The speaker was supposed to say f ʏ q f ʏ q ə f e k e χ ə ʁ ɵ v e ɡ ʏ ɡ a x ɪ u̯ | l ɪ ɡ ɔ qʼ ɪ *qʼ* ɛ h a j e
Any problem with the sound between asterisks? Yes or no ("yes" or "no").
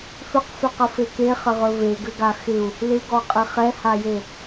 yes